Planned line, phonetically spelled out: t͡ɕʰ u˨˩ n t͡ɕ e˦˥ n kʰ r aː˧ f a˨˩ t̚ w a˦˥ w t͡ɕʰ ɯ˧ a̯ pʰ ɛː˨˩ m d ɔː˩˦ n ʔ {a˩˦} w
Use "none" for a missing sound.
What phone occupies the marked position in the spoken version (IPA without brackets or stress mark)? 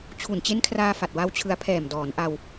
a˧